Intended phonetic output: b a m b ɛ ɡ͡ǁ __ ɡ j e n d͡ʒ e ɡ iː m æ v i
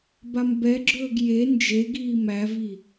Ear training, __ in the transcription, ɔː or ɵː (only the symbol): ɵː